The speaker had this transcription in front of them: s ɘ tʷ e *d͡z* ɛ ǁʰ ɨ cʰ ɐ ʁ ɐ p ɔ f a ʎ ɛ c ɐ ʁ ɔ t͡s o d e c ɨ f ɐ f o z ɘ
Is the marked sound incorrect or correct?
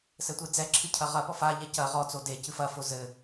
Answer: correct